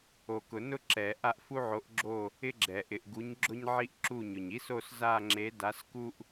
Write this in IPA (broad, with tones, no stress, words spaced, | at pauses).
o˨kʊ˨˩˦nʊ˦ ǁɛ˨˩˦ ʔa˦˨ʔfu˦ʕo˨˦ʔɡ͡ǁo˦˨ | ɪ˦ɡ͡ǁɛ˨ ʔɪ˨ʔɡu˨˦ɲ ɡ͡ǁʊ˦ɲ ʕi˦ʔǁu˦˨ɲʊ˨ɲ i˦so˦˨sza˦˨ŋ͡ǁe˨˦ da˨˦sku˦ʔ